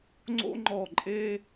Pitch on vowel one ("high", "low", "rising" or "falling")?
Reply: high